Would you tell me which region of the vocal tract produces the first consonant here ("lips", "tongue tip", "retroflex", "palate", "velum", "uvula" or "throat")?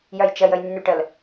palate